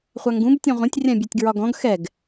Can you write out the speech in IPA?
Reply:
χʷaŋɡũb tʲɔ̃ʁʷẽtʲ rʲãbʲetʲɡɹɒɡɔ̃ɡ xɛɡ

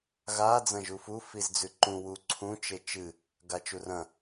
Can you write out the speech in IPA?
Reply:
ɣa d͡zɐ̃ʒufu fizd͡zʉǃũ wu ǀʰũ t͡ʃet͡ʃɨ | ɡat͡ʃurɐ̃

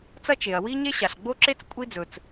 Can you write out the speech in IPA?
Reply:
t͡sɐ˥t͡ʃe˩ɐ̯ wi˥ɲe˥ ɕa˩ɬɡ͡bo˥ǁe˥t͡s kʷʼi˥d͡zɵ˩t͡s

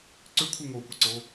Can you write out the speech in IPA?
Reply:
ǀʏ kʷʰɯŋokʷeǀo

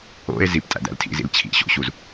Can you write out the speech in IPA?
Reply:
o̰e̯ zip tʼæ̰dæ̰ltʰḭzḭl t͡ɕʰḭ ɕo̰ɕuz

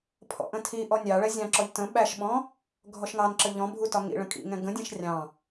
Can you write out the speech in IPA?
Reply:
pʰɔ̰ʔə̃tʰiʔɔ nʲɑɭɛ zʲɑ̃ǁɔʎ tə̃ ɓæʃɓɔ̃ | ɡʱɔʃŋɑnǁə ʎɔ̃ bʱutɒŋḭɭə̃ kʼḭ ŋɛ̃ɡə̃dʲɛ̃ʃ rʲɑ̃

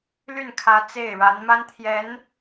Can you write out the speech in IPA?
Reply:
ly˥˩n kʰä˧˥ t͡se˥˩ɪ̯ɻa˧˥n ma˥nt̪ʰjɛ˧˥n

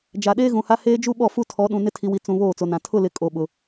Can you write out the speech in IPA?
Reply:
d͡ʒa˨ɗeː˦ɣũ˨ha˦ heː˦d͡ʒu˦ɓɔ˦˨ fu˦tʰɔ˨˦ɗũ˨ nɪ˦tʰi˨wi˨ t͡sũ˨ βoː˦˨t͡so˨nã˨ tʰʊ˦˨lɪ˨ kʼo˨ɓʊ˨

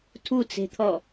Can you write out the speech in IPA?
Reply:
tʰut͡se̤t̪ʰɔ

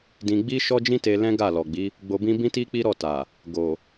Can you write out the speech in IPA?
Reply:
dĩ˧ ɡ͡bi˦ʃɔ˦d͡ʒĩ˦te˧ lɛ̃˦ɡa˦˨lɔ˨ɡ͡bi˨˦ | ɡ͡bo˧bĩ˦ bĩ˦ti˦ k͡pi˦ɾɔ˦˨ta˨ | ɡo˨

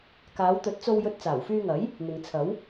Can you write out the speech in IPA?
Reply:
kaː˨˧wt̪ɵ˨˥t̚ t͡so˧w jɵ˧t̚t͡saː˨˩wfyː˧ŋɐ˨˥j | n̪ɪ˨ŋt͡sʰɐ˨˥w

